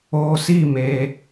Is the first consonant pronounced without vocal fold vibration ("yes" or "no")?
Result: yes